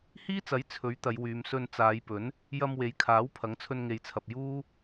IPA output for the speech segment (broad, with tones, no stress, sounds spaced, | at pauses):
h iː˥ t͡s ɐ˨˥ j t͡sʰ ɵ˨˥ ɥ t̪ ɐ˨˧ j w yː˨˧ m s ɵ˧ n t͡s aː˨˧ j p ɵ˨˥ n | j ɐ˧ m w e˨˥ j kʰ aː˨˥ w pʰ ɐ˨˥ ŋ t͡sʰ ɵ˧ n ŋ e˨ j t͡sʰ ɐ˨ p̚ j uː˥